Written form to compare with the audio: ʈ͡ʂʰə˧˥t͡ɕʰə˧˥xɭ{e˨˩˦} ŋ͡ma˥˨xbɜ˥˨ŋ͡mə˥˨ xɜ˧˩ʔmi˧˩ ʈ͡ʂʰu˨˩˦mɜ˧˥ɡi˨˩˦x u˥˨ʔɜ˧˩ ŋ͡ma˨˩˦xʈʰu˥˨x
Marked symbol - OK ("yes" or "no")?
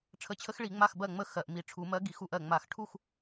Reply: no